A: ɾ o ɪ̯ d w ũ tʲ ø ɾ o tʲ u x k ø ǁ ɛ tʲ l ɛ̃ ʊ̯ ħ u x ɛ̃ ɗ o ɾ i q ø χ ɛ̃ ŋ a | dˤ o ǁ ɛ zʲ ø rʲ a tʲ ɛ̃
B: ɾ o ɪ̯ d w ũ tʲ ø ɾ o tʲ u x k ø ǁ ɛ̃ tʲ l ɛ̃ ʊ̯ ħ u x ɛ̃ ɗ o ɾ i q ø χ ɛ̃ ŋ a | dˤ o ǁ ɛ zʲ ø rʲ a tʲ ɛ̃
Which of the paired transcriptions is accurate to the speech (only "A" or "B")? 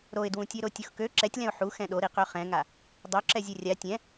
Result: A